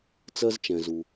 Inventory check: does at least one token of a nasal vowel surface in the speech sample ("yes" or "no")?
yes